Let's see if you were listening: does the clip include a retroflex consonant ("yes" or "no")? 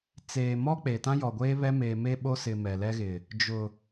no